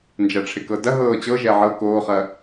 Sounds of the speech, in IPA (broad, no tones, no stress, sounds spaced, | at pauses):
n d͡ʒ ɐ ʈ͡ʂʰ ɪ k ɤ d ɐ ɦ ɤː t͡ɕ ɤ ʒ ɛ ʕ ɤ k oː χ ɐ